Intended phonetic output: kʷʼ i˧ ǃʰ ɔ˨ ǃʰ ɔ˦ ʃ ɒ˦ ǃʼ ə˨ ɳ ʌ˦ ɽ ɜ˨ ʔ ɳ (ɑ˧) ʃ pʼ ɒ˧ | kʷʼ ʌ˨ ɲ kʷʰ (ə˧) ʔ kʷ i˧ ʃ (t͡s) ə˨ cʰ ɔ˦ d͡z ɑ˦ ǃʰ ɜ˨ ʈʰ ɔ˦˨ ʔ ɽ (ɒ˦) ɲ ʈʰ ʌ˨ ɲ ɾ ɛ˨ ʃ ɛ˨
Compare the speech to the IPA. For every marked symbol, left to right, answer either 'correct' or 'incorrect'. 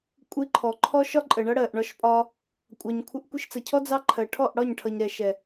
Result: incorrect: ɒ˧, correct, correct, incorrect: ɒ˦˨

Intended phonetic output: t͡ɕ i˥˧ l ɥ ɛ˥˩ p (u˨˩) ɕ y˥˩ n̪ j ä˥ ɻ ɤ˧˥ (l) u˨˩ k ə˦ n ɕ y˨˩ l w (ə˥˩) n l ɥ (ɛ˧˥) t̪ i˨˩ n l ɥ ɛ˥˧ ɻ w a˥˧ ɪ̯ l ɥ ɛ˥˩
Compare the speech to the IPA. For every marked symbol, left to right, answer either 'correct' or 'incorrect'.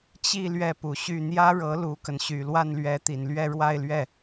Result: correct, correct, incorrect: a˥˩, correct

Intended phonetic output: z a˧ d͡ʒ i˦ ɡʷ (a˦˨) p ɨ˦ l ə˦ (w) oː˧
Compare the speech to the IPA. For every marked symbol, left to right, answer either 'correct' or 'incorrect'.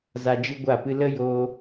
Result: correct, incorrect: j

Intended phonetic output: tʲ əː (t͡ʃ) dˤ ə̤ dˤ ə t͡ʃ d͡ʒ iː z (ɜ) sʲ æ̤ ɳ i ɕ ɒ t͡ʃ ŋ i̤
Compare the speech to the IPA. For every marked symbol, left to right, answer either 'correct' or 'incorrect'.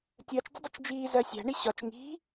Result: correct, correct

